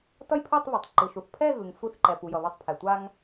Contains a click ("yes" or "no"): yes